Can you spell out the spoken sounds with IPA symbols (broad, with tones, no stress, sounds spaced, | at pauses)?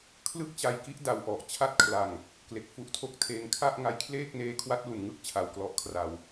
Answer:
kʰ l ɯ˥˩ k̚ t͡ɕ a˧ j k i˥˩ ʔ d a˧ w ʔ ɔ˨˩ ʔ t͡ɕʰ a˦˥ t̚ kʰ l a˨˩ ŋ | k l e˨˩ k̚ f u˦˥ ʔ tʰ o˦˥ k̚ tʰ eː˧ ŋ kʰ a˥˩ ʔ ŋ a˦˥ j kʰ l eː˥˩ k̚ n eː˦˥ kʰ w a˦˥ t̚ l u˨˩ n ŋ ɯ˥˩ k̚ t͡ɕʰ a˩˦ w k l ɔ˨˩ ʔ kʰ r a˨˩ w